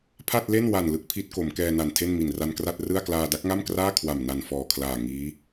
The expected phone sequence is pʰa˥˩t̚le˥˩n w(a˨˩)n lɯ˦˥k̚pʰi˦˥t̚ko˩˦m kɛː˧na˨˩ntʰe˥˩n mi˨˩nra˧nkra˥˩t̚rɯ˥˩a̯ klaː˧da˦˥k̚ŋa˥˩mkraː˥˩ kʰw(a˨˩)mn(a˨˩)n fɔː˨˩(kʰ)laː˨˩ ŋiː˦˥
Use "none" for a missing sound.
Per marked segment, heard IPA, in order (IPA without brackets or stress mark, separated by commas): a˨˩, a˨˩, a˨˩, kʰ